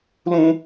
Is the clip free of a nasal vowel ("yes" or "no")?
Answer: no